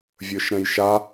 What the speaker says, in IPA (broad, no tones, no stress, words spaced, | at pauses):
vʲə˞ʃɾɛ̃jʃa